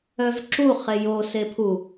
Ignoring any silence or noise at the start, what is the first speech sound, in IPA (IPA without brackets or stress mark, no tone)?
œ